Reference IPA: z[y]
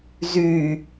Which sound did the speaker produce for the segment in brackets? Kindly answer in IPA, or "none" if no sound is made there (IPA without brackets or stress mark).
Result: y